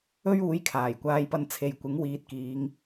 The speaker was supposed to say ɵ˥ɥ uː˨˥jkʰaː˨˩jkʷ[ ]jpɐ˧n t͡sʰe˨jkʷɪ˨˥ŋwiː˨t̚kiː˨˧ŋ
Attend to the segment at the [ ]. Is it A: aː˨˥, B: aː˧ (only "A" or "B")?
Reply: B